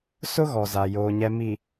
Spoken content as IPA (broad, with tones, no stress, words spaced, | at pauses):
sʊ˦ɣɔ˨ za˨ joː˨ɲɛ˨mi˨